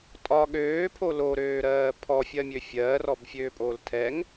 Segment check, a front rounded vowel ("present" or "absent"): present